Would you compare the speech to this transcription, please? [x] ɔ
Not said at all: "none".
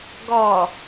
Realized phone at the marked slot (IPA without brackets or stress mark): ɡ